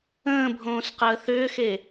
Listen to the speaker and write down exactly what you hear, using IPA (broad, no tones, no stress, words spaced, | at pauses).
ə̃ːbʱõːsqəː θʏːxe